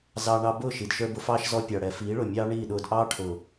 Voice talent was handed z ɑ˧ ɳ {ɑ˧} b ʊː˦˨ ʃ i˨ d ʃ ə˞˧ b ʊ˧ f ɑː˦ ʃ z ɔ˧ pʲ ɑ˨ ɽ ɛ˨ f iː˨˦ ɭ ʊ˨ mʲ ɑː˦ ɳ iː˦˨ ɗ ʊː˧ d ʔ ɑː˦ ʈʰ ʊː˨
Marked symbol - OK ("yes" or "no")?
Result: yes